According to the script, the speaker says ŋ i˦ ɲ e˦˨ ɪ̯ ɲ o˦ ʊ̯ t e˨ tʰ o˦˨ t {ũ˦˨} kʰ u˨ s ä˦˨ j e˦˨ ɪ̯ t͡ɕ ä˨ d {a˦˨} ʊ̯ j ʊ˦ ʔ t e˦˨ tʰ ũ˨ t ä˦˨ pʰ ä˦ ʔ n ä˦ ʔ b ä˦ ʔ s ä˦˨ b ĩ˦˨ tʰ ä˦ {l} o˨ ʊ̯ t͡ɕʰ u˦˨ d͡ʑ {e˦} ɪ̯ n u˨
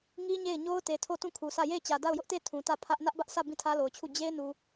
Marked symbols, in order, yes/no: yes, yes, yes, yes

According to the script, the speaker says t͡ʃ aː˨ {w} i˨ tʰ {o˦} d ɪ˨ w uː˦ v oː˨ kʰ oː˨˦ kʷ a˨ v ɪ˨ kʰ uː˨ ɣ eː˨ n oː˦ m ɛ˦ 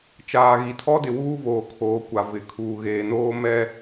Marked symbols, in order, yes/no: no, no

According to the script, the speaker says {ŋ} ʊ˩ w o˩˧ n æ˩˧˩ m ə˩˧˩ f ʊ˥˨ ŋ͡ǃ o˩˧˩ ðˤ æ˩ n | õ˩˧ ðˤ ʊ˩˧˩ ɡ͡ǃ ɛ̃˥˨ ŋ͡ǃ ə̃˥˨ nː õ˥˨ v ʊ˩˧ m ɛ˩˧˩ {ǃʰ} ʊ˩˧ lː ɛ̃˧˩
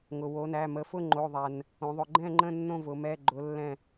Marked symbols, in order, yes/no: yes, no

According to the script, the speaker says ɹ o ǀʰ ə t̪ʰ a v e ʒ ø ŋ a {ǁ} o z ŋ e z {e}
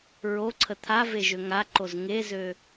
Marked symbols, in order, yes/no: no, no

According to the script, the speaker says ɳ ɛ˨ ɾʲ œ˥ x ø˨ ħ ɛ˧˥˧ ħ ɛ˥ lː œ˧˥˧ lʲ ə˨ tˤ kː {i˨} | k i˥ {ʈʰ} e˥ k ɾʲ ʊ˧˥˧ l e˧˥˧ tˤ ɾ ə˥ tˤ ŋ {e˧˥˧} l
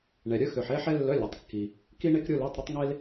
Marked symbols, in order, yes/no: yes, no, no

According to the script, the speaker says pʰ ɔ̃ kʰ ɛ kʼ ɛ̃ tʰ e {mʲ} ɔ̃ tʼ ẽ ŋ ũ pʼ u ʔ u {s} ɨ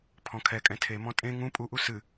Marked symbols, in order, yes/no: no, yes

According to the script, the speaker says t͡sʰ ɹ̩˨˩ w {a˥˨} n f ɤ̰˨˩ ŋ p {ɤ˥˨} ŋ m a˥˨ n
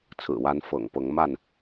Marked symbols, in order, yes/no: no, no

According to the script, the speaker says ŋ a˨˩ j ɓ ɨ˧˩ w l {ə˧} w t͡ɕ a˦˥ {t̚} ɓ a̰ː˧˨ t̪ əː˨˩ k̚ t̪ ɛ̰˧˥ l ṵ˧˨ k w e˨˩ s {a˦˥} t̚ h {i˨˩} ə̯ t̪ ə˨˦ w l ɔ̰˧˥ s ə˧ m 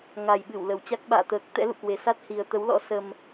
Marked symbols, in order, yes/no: no, no, yes, yes

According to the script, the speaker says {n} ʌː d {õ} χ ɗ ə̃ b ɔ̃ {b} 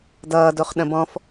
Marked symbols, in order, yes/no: no, no, no

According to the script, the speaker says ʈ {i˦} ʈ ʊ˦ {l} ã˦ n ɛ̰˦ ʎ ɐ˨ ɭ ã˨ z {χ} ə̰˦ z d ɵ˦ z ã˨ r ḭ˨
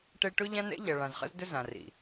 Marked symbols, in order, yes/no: no, no, yes

